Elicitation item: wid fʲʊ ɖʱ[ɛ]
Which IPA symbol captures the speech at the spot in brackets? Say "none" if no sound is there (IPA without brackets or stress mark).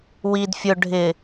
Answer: ɪ